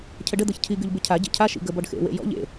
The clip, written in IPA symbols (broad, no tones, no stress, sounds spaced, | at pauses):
cʰ ə ɖ ə d̪ ɤ ç cʰ i ɡ y ʎ b ɪ cʰ a ɟ ḛ cʰ a ʃ ḭ ɡ ə b ɔ ɖ x ḛ w ḛ j ɔ̰ ʎ ḛ